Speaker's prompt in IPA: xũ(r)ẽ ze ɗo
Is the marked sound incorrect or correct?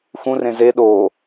correct